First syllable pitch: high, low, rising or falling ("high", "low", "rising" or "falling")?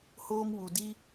high